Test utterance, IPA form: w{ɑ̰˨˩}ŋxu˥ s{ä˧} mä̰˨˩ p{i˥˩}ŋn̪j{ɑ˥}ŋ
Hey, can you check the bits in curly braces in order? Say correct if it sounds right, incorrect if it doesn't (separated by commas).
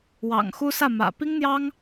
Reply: correct, incorrect, incorrect, correct